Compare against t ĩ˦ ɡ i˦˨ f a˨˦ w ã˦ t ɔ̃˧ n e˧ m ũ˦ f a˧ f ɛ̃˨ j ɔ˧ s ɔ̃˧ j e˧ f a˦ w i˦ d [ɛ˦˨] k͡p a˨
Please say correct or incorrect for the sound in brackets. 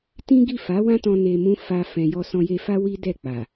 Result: correct